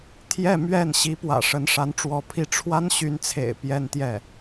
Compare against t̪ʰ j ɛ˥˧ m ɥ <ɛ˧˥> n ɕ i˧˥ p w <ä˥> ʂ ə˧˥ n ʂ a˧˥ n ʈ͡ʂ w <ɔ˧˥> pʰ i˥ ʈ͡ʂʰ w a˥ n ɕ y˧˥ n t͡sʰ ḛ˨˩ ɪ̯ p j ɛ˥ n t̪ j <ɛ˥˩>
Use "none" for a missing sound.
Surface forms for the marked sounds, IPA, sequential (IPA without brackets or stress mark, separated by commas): ɛ˥˩, ä̰˨˩, ɔ˧˥, ɛ˥˩